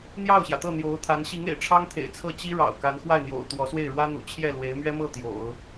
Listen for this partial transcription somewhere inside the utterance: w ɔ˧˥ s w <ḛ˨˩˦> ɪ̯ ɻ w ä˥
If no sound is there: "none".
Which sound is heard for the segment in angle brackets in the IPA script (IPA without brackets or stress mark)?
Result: e˥˩